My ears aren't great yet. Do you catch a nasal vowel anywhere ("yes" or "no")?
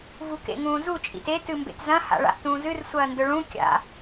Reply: yes